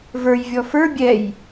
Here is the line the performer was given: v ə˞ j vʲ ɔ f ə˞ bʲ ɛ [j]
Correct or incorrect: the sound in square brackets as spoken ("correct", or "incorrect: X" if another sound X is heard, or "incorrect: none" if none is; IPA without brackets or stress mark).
correct